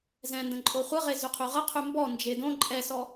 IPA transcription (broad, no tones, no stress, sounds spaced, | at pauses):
z ɛ̃ n d ə̃ ǃʼ o χʷ ə ʁ e z y qʰ y ʁ ə qʰ y m b ɔ n d͡ʒ e d õ ǃʼ ɛ s ɔ